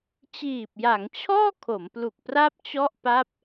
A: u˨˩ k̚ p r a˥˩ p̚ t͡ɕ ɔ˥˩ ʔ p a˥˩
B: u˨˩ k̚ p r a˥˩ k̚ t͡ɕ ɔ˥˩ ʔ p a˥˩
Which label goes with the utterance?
A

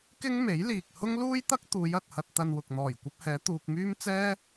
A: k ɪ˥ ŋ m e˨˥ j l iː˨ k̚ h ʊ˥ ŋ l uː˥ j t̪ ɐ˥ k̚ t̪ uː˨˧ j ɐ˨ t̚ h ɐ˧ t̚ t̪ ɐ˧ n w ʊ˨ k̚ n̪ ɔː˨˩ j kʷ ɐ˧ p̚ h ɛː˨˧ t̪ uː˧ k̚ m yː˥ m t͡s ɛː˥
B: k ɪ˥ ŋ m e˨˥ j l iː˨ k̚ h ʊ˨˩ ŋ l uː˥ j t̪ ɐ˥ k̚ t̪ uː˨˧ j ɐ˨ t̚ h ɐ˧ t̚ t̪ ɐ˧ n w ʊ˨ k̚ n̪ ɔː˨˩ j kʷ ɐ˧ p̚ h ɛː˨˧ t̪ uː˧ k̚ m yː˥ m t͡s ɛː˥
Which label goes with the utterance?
A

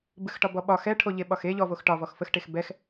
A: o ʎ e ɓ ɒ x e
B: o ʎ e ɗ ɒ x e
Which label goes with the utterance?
A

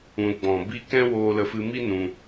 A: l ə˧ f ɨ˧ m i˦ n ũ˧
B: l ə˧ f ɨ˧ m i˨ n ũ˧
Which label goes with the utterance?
A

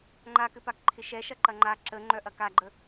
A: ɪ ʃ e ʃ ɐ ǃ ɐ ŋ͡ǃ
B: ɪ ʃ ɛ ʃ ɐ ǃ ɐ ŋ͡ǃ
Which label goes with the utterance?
B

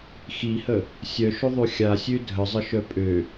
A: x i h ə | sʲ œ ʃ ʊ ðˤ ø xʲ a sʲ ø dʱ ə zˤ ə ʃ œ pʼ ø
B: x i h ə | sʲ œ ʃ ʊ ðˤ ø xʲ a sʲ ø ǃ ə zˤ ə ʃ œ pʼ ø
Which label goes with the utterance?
A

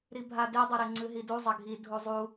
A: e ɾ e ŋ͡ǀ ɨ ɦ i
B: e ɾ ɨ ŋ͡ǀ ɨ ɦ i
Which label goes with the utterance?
A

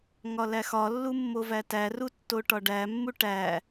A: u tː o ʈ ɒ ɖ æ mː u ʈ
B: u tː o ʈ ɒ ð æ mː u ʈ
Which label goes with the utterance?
A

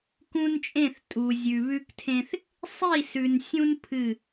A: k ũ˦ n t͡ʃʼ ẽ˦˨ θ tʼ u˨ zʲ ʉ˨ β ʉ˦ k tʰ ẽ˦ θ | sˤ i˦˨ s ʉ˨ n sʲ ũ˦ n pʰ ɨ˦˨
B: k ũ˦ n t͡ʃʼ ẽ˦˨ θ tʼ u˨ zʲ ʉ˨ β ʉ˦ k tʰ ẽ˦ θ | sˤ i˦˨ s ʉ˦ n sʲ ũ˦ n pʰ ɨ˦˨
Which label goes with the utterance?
A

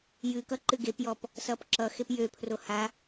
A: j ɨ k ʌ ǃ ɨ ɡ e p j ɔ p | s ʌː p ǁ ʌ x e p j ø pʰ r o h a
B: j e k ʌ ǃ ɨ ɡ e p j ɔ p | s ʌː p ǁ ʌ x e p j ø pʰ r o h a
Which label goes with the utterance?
A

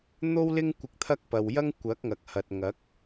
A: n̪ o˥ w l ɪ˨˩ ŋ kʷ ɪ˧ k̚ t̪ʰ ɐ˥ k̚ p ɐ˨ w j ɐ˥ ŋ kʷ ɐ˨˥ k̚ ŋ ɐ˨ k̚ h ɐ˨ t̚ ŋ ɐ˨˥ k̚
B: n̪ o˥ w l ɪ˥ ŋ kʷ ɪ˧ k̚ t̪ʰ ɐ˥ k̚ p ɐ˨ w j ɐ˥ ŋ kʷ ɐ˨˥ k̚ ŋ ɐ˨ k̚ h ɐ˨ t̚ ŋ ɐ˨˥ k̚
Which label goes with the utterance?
B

